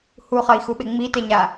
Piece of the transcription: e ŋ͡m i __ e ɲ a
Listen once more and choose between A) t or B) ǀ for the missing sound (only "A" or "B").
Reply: A